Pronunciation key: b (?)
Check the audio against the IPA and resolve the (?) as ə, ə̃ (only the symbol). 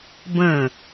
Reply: ə̃